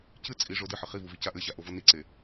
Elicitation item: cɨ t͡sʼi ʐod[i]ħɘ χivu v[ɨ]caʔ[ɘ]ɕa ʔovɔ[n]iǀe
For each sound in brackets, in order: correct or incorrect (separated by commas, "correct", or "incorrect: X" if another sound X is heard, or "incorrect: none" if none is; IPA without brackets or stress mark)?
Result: incorrect: ɨ, correct, correct, correct